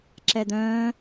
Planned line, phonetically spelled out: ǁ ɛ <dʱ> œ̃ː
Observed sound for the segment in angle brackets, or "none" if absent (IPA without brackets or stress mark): d̪